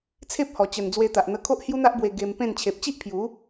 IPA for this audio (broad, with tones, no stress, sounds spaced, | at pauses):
t͡sʰ e˦ p̚ h ɔ˨˩ t͡ɕ ə˨˩ n d͡z w e˧ t̪ a˨ ʔ n̪ ə˧ kʰ o˦ ʔ h j u˦ n̪ a˦ ʔ b w e˧ ɡ e˧ m p ẽ˥˧ n t͡ɕʰ e˨ p̚ t͡ɕ i˦ ʔ pʰ j u˨˦